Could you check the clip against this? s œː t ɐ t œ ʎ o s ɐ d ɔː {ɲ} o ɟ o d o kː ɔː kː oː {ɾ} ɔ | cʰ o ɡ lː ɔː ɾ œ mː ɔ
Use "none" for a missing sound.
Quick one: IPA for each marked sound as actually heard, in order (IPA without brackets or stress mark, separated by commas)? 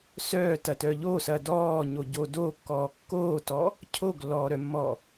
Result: ɲ, t